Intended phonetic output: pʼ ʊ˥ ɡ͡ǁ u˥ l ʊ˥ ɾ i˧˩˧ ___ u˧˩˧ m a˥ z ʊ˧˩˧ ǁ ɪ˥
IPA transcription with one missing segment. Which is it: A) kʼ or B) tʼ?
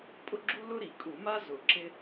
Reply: A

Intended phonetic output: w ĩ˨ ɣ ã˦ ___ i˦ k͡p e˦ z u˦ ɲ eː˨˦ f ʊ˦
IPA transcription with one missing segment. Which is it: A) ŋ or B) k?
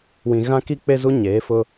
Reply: B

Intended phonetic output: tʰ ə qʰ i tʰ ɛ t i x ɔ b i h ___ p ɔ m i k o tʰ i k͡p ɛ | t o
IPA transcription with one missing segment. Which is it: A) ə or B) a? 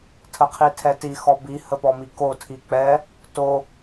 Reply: A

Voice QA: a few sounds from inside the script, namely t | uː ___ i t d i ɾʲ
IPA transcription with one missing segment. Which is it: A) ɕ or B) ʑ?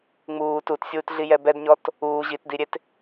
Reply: B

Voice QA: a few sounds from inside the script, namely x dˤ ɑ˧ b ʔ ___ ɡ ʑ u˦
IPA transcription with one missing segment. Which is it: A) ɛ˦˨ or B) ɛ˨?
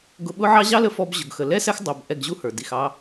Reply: A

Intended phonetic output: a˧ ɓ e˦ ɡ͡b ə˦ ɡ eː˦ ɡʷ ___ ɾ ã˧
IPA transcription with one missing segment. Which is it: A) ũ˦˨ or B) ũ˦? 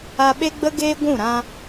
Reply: A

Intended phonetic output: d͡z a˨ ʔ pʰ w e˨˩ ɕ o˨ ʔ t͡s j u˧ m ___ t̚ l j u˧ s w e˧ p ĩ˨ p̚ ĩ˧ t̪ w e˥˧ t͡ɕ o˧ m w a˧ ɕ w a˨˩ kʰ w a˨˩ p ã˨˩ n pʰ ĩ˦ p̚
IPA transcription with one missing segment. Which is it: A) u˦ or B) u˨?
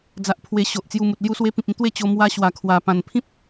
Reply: B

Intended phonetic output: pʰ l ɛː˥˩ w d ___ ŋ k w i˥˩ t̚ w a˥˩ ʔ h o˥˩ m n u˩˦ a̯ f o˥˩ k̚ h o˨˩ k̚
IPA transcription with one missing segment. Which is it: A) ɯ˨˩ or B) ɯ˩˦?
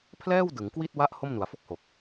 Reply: B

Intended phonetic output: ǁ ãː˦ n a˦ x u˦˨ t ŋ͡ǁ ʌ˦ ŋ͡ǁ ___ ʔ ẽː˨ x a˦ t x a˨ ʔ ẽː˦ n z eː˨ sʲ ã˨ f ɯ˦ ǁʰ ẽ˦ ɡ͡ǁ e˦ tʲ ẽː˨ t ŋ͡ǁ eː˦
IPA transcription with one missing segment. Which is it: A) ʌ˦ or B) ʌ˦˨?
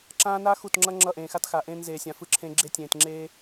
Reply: B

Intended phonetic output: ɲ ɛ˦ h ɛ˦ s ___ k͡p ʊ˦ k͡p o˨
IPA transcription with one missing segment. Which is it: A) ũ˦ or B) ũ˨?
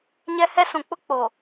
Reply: B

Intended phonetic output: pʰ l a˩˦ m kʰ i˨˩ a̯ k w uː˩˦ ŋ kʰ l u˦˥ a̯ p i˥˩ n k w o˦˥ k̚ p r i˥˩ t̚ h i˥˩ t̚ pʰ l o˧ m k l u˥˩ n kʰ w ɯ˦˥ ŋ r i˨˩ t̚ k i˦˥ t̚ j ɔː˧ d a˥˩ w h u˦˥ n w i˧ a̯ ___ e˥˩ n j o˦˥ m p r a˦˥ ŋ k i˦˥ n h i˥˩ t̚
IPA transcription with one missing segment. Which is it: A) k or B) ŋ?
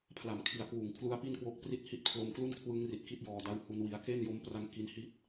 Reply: A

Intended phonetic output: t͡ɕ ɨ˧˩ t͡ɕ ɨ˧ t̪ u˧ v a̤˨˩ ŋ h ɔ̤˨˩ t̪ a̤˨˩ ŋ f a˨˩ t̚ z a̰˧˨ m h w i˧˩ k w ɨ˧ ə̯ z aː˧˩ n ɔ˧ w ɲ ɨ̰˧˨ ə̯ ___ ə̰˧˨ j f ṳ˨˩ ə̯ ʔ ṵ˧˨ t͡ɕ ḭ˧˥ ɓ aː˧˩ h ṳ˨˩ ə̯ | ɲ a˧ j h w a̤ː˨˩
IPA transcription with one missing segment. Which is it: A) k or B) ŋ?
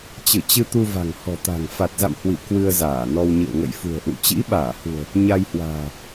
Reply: B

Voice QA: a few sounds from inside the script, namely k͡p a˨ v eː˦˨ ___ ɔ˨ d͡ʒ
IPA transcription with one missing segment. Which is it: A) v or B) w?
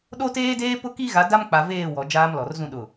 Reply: B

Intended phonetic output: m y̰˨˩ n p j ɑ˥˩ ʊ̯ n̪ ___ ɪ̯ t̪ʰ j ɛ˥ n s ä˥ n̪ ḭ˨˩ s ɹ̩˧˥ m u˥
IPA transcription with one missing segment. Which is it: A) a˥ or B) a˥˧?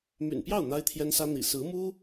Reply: A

